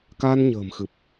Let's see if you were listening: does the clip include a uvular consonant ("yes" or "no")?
no